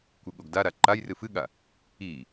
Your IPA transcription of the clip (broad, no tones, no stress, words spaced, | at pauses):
kʷɨɠoɡdaɾa ǃajrɨ fɨɠa | i